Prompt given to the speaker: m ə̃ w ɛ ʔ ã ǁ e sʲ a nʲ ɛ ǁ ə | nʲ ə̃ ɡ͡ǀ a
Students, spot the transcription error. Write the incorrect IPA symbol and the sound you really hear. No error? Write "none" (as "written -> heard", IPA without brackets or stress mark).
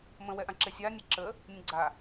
none